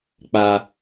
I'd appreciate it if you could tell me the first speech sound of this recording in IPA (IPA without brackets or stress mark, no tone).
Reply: k͡p